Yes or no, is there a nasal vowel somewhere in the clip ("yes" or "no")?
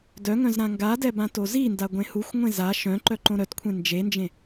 yes